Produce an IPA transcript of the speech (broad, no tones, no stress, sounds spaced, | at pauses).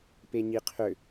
p e ɲ i qʰ ø